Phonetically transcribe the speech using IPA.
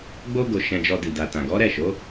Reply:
ɡ͡bo˦ɡo˧ ʃɛ̃˧d͡ʒɔ˧di˨ da˨tã˨ɡɔ˨˦ ɾɛ˦˨ʃo˨˦

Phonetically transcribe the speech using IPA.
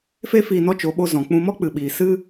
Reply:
fe˦fiː˧ nɔ˦t͡ʃo˨˦ɓo˧ zɔ̃˨k͡pũ˧mɔ˦ k͡pɨ˨ɓiː˨ sɨ˦

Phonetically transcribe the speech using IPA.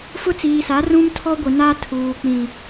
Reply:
fʊ˦t͡siː˨sa˨˦ rũ˦mtʰɔ˦ɡʷɪ˨ na˦tʰuː˨ k͡pĩ˨

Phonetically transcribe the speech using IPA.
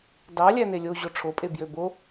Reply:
dɑ lʲænelʲoʑo ʈ͡ʂʰopʼe bjøbo

